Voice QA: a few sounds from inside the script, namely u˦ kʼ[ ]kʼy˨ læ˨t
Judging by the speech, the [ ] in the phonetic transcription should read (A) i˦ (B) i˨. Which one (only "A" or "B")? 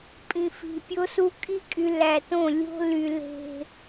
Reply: A